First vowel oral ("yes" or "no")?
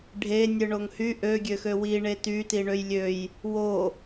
yes